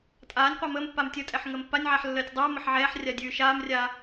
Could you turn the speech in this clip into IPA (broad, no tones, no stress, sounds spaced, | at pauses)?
tʼ aː nʲ qʷ a m əː m pː a m tʲ ə tʼ ɛ ħ ŋ əː m pː a nʲ ʕ a ħ lː əː tʲ dˤ ʉː m ə ħ ʕ ɛː ħ rʲ a dʲ ʉː ʃ aː m rʲ aː